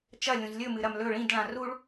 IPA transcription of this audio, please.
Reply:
t͡ʃ ɐ lʲ ũ z lʲ ɵ m ɨ ɾ ɐ m l ɵ ɭ ĩ d ɭ ã r u ɭ

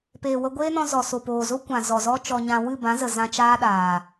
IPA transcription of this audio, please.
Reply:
p eː˨ w ə˧ ɡʷ eː˦ n ɔ̃˧ z ɔ˨ s o˨ p oː˨ z o˦ kʷ ã˨ z ɔ˨ z ɔ˦ t͡ʃ ɔ˧ ɲ ã˧ w ɨ˦˨ b ã˨˦ z ə˨ z ã˧ t͡ʃ aː˦ ɗ aː˨

